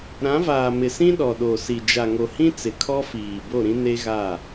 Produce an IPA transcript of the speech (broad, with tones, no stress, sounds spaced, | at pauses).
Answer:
ɾ ã˨˦ v aː˨ m ɪ˨ s ĩ˦ ɗ ɔ˨ ɗ o˨ s i˨ d͡ʒ a˨ ŋ o˨ h ĩ˦ t͡s ɪ˨ kʰ ɔ˦ f iː˨ b o˦˨ ɾ ĩ˦ n e˦ ɣ a˦˨